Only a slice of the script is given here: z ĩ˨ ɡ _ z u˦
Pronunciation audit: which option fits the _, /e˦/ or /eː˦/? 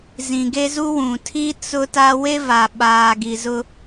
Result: e˦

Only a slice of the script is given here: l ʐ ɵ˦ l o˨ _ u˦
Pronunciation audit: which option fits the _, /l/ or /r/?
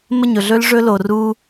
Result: r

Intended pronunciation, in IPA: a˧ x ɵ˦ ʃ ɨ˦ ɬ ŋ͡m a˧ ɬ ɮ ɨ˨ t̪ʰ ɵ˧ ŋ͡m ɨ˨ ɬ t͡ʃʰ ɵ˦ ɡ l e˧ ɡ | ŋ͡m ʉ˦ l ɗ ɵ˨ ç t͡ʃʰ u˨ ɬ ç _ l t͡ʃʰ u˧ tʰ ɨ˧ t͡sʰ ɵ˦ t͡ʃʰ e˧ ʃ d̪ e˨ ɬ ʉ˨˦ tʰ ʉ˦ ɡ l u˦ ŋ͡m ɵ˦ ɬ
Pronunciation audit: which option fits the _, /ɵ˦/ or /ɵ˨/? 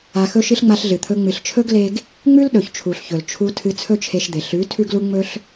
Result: ɵ˨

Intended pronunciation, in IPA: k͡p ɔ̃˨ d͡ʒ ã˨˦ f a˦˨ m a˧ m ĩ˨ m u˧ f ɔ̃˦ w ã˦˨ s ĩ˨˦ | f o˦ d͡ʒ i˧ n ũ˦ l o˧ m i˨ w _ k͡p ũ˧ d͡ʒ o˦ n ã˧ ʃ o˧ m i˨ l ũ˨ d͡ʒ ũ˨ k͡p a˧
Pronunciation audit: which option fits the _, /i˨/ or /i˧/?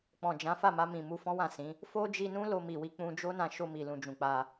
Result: i˧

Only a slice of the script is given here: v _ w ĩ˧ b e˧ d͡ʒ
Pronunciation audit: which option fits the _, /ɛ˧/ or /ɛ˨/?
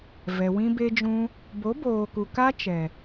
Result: ɛ˨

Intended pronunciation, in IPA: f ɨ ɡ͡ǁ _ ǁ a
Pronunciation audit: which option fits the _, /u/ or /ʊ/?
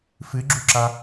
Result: u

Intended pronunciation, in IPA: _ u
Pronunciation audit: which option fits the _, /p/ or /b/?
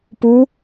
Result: p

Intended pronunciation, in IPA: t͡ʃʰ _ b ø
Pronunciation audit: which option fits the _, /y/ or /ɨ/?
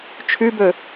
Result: y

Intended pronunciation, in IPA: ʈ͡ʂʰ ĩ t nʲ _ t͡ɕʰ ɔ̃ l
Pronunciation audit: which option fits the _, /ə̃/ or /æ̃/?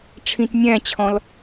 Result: æ̃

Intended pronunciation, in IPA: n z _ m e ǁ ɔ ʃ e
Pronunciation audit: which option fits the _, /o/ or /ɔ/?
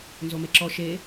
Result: o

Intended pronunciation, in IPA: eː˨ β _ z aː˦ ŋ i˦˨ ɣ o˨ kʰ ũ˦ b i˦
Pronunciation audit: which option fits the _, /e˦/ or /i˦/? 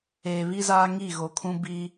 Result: i˦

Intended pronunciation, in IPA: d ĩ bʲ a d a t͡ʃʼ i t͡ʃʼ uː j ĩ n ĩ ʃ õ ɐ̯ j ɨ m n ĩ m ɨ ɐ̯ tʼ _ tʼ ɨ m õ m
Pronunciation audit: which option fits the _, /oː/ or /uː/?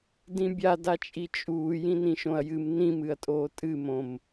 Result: oː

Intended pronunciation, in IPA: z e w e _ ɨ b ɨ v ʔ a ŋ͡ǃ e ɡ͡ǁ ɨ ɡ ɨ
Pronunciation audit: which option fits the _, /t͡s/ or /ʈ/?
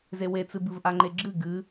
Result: t͡s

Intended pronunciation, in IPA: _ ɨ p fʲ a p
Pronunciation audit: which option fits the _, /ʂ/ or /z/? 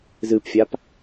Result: z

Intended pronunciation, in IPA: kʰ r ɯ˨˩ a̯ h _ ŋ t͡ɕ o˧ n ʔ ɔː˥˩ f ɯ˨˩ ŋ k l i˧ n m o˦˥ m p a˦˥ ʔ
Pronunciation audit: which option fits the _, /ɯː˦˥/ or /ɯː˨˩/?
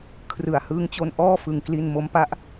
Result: ɯː˦˥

